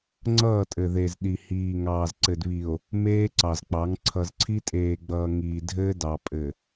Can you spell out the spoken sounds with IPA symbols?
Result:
ŋ͡ǀ ʌː˦˨ tʼ ɘ˨ ð e˨ z ɗ i˨ h iː˨ ŋ ɑː˨ z ǀ ɘ˨ d β i˨ o̯ | m eː˦ ǀ ɑ˨ z k͡p ɑ˨˦ ŋ ǀʰ ʌ˨ z ǀʰ i˦ tʼ eː˨ ɡ͡b ʌː˨ ŋ iː˨ dʱ ɘː˦ d ɑ˨ pʼ ɘ˨

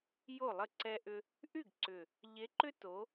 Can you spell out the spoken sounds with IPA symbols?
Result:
j o˥˩ lˠ ə˥˩ ǀ ɛ˦ ʔ ʏ˦ | ʔ y˥˩ ɡ ǀ ʏ˨˩ | ʎ e˨˦ ǃ ʏ˦ t o˨˦

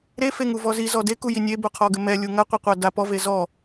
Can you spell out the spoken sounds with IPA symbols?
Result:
ɾ e f e ŋ u v ɔ z i z ɔ d e k u j i nʲ e b o qʰ ɔ ɡ ɘ m ɛ lʲ u ŋ ɐ qʷ ɘ qʷ a d a p ɔ v e z ɔ

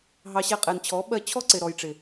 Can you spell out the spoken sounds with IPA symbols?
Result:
ɦ ɑ˧ ɕ æ˧ qʼ ɛ˨ n t͡ɕʰ ɔ˨˦ ɓ ɜ˧ t͡ɕʰ ɔ˦ ǀ ɪ˨ ɾ ɔ˨ j ʈ͡ʂ ɪ˨

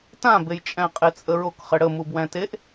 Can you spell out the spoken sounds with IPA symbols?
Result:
t ã b e j t͡ʃʼ æ̃ qʼ e t͡sʼ ə ɹ o k χ ɘ ɽ ə m u b w æ̃ t e ʔ

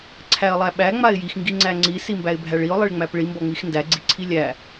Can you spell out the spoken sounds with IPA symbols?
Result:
ǀʰ æ ə̯ lˠ æ ɓ æ ŋ͡m a ɪ̯ j i x ŋ ɡ i ŋ͡ǀ æ ŋ͡ǀ i s i m b æ ɪ̯ bʱ æ ɭ i ʊ̯ lˠ i ɭ ŋ͡m æ p ɭ i m b ɔ ŋ͡m i x n d æ ɡ͡ǀ i ǀʰ i lʲ æ

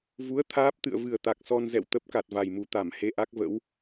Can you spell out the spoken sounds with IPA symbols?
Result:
v u˨˦ ə̯ t̪ʰ aː˦˥ p̚ t̪ ɨ̰˧˨ ə̯ v ɨ˨˩ ə̯ t̪ a˨˩ k̚ s ɔ˧ n z ɛ̰˧˨ w t̪ ə˦˥ p̚ k a˨˩ t̚ v a˨˩ j m u˨˩ t̪ a˧˩ m h e˧ ʔ a˦˥ k̚ v ə̰˧˥ w

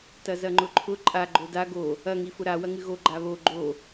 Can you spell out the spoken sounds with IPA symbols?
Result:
t ɐ z ɐ ŋ͡ǃ ʊ ǃʰ ʊ ǃʼ a ɡ͡ǃ o d a ɡ o | ɐ ŋ i f ʊ ɾ a w ɐ ŋ ɨ ɣ o ɡ͡ǃ a β o ɡ͡ǃ o

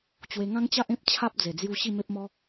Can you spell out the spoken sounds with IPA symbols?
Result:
t͡ɕ w e˧ ŋ ã˦ ŋ t͡ɕ a˦ ʔ ẽ˦ p̚ t͡ɕʰ a˦ p̚ d͡z e˨˩ d͡z j u˧ ɕ i˥˧ m e˦ p̚ m ɔ˦

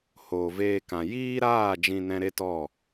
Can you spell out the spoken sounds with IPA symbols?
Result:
h oː˨ v eː˧ k ã˨ j iː˦ ɾ aː˦˨ d͡ʒ ĩ˧ n ɛ̃˧ ɾ e˦ t ɔ˦˨

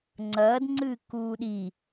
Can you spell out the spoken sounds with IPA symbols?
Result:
ŋ͡ǀ ɐː d ŋ͡ǀ ɨː k uː ɗ i

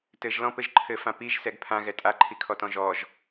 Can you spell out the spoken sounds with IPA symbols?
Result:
t ɘ ʒ l ɔ̃ p ɘ ʒ ǃʰ ɘ f ã p i ʒ s ɛ ɡ pʰ ã ɣ ɛ tʼ a ǃʰ i kʰ ɔ t ɔ̃ ʒ ɔ ʒ

